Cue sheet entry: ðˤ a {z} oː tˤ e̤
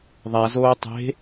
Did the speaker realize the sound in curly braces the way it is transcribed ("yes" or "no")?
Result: yes